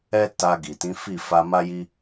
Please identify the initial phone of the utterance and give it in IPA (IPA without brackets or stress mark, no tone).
ɛ